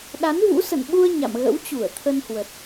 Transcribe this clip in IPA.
ɗ a˨˦ n v ṵ˧˥ s ə̰˧˨ n ɓ u˧ ə̯ ɲ a̰˧˨ m ɣ ə̰˧˥ w t͡ɕ u˧˩ ə̯ t̪ʰ ə˧ n h w ə˨˩ t̚

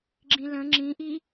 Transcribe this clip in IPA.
ɡ͡ǁ ĩ l ə̃ ŋ͡ǁ ĩ ʔ i

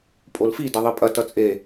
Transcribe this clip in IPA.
pʼ o l f i d ɐ ðˤ i pʼ ɐ t ʌ t͡sʼ e

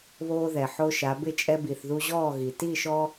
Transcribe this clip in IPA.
β oː˦ ð ɛ˨ ħ o˦ ʃ a˨˦ b ɪ˥˨ t͡ʃʼ ɛ˦ b i˨ θ ð u˦ ʑ ɔː˥˨ ɣ i˨ t i˥˨ ʃ ɔ˦

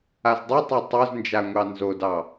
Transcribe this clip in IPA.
a z dˤ ʉ tˤ o tˤ o z n d͡ʒ a ŋʷ ɑ n z o d ɑ

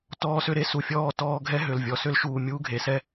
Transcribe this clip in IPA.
t ɔː˧ s ʏ˧ ɾ e˧ s u˨ fʲ ɔː˦˨ t ɔː˧ ɡʱ ɛ˦ ɦ ʏ˨ l vʲ ɔ˨ s ʏ˦ l ʃ uː˧ mʲ u˦ ɡʱ e˨ s ɛ˦

